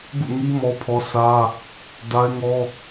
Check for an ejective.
absent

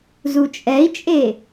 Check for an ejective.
present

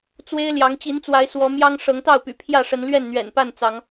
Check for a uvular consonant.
absent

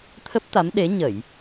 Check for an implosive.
present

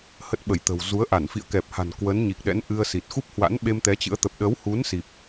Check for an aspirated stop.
absent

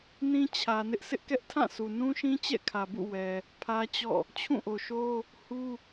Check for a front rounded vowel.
absent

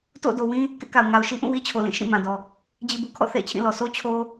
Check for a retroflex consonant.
absent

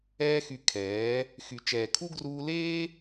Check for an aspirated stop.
present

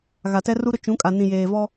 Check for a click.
absent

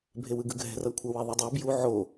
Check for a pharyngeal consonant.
present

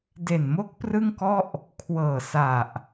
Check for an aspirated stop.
present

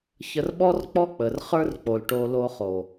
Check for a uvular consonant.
present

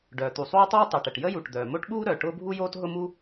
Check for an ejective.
absent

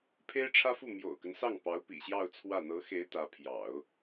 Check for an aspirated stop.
present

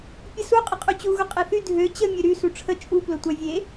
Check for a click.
absent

